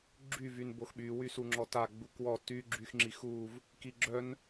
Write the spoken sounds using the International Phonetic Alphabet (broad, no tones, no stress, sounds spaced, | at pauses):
ɡ͡ǁ y v y n b o x ɓ y w y s u ŋ͡ǁ ɔ t a ɡ͡b u k w ɔ t y ɡ͡ǁ y x ŋ͡ǁ i x u v | k i ɡ͡ǁ œ n